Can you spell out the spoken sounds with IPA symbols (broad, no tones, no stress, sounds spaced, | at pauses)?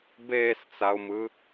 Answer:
b eː s t͡s a ʊ̯ m ɯ